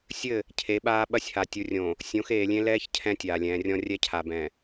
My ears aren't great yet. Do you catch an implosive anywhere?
yes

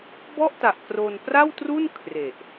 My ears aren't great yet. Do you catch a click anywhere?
no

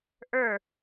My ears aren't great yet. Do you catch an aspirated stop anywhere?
no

